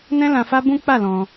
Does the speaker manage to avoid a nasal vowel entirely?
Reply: no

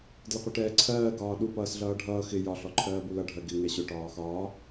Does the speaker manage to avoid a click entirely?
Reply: no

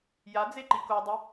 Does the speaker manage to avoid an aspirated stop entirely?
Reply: yes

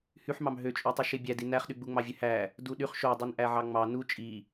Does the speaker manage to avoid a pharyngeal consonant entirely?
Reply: no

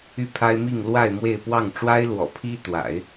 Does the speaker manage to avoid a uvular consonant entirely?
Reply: yes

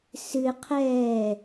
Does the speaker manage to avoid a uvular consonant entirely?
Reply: no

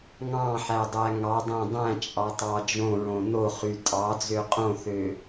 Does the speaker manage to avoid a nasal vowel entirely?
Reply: no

